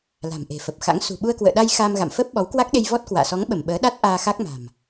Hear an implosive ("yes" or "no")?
yes